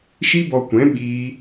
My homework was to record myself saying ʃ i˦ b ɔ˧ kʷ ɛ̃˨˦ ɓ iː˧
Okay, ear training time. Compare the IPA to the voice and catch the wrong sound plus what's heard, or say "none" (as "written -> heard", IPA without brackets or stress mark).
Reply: none